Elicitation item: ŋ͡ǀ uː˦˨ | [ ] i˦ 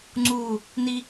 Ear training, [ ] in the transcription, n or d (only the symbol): n